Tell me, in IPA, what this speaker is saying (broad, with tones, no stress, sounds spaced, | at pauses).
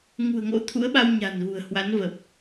ŋ ṳ˨˩ ə̯ ŋ o̰˧˥ t̪ʰ ṵ˧˥ ə̯ ɓ a˧ w ɲ a̤˨˩ n ɣ ṳ˨˩ ə̯ h w a˨˦ n v ə˨˩ p̚